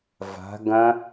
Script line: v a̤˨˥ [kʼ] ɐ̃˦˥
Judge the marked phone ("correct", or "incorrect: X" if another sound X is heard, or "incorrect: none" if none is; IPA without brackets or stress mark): incorrect: ɡ